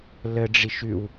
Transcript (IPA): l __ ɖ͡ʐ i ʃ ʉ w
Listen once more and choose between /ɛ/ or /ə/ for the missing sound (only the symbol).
ə